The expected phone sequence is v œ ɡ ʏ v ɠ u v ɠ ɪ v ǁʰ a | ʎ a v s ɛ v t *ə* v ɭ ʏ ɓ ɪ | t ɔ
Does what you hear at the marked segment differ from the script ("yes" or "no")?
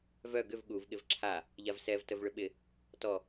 no